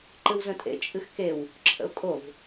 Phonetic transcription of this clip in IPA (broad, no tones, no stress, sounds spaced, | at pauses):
ǃ ɨ w z ə̃ tʼ ḛ t͡ʃʼ ɨ x k e w | ǁʰ ə̰ ʊ̯ kʼ o v